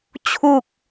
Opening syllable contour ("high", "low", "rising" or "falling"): low